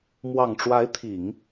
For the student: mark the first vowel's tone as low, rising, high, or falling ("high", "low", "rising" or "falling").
low